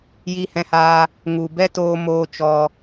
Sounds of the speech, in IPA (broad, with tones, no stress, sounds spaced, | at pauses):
j i˧ h ɛ̃˧ h aː˧ | ŋ u˨ b ɛ˦ t oː˧ m oː˦ t͡ʃ ɔ˧